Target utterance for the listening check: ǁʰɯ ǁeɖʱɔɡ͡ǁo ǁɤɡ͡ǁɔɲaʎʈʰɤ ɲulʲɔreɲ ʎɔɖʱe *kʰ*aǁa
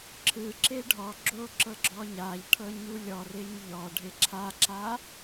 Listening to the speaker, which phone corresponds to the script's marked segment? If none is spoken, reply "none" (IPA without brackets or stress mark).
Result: ǁʰ